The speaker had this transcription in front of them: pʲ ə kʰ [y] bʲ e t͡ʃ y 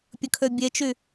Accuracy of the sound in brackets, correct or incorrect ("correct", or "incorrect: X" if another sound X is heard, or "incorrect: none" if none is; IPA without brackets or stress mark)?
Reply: incorrect: ø